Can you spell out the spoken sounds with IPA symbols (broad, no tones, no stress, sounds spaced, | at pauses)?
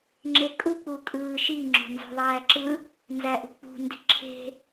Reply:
ŋ͡ǁ e kʼ u k͡p u kʼ ɯː ʃ i ŋ͡ǁ o̤ n z o̤ ðˤ æː ǁ ɯ | n z æ ʔ ṳ k͡p ṳ n d i̤ ǁʰ e̤